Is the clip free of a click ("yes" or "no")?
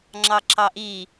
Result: no